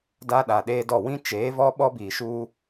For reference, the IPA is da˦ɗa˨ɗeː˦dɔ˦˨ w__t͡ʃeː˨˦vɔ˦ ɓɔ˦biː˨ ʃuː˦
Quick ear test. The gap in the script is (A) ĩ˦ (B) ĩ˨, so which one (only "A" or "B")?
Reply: A